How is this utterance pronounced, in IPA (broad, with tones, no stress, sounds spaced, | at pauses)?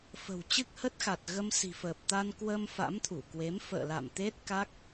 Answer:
f ə̤˨˩ w t͡ɕ ɨ˦˥ k̚ h ə˦˥ t̚ x a˨˩ t̚ ɣ ə˧ m s i̤˨˩ f əː˨˩ p̚ t̪ a˧ n k w ə˧ m f a̰˧˥ m t̪ʰ u˧˩ k w e˨˦ m f ə̰ː˧˨ l a̰˧˨ m t̪ e˦˥ t̚ k a˦˥ k̚